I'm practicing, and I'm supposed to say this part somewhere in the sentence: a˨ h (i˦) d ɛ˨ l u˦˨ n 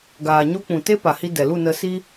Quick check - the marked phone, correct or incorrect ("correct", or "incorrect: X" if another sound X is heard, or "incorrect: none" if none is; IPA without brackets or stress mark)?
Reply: incorrect: i˧